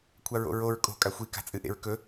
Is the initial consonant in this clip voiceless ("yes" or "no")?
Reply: yes